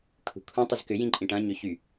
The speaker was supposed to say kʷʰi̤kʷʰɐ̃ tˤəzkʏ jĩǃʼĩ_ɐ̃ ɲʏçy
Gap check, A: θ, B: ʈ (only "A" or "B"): B